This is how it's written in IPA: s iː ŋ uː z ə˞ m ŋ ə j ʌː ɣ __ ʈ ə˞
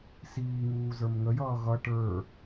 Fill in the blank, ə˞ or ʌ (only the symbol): ʌ